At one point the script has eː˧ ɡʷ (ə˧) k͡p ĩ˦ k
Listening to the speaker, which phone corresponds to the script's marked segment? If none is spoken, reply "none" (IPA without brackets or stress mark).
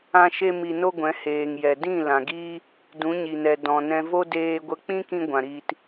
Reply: ə˧